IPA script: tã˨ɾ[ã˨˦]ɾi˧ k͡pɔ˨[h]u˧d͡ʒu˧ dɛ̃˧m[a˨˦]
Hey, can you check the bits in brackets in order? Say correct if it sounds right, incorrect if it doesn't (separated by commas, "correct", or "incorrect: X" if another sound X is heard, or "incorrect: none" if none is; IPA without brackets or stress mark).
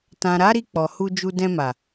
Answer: incorrect: a˨˦, correct, incorrect: a˨